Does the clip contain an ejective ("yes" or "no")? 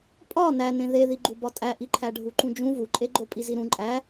yes